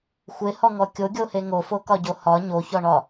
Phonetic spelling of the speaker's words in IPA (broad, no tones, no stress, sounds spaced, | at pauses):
xʷ e h ɔ ŋ ɔ kʲ o ɡʲ o h e ŋ o f o k ɒ ɟ o h ɒ ɲ o ç ɔ ɳ ɒ